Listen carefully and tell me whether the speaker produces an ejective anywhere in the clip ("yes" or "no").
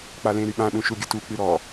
no